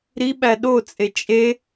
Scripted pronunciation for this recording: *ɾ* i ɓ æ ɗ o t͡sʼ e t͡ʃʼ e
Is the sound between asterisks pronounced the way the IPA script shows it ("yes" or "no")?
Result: yes